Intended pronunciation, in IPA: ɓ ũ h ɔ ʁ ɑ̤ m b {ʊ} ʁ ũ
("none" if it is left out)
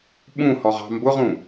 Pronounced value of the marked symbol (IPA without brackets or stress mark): ʊ